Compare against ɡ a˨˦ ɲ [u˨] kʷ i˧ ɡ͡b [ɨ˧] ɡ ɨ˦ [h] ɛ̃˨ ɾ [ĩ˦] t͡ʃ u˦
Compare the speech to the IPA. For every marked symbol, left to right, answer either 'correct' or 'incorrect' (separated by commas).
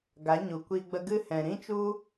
correct, incorrect, correct, correct